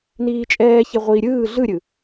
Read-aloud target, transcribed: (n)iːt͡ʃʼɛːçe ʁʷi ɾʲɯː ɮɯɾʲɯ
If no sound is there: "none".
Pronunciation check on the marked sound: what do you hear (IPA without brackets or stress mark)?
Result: n